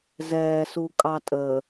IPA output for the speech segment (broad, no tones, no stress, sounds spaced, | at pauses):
z ɛː s u kʼ ɑ tʼ əː